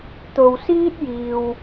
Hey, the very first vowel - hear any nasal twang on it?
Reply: no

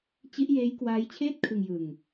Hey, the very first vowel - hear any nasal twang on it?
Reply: no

